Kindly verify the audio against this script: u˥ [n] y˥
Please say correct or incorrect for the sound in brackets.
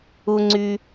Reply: incorrect